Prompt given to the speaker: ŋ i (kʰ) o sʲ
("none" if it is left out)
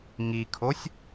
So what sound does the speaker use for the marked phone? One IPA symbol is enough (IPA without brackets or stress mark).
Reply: kʰ